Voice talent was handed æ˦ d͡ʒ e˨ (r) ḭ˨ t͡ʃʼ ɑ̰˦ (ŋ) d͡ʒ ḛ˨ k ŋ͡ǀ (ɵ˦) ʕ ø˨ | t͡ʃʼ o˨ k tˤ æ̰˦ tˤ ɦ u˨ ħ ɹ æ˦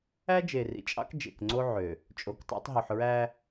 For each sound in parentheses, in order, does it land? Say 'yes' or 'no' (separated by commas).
yes, no, no